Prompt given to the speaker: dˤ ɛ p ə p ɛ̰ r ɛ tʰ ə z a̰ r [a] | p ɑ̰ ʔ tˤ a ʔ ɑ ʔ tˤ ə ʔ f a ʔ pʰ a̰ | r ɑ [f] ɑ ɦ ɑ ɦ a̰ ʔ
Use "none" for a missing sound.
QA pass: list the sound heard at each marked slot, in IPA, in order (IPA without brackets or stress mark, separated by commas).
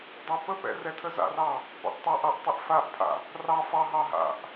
ɑ, f